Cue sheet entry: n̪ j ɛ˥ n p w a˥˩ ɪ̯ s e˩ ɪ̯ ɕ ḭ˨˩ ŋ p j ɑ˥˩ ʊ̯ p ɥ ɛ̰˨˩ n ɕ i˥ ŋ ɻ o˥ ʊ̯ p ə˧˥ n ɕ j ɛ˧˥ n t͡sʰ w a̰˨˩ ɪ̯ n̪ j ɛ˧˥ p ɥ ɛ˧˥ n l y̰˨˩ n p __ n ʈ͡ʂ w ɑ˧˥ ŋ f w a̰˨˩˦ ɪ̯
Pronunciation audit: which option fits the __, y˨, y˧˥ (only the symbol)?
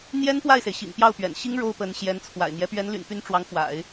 y˧˥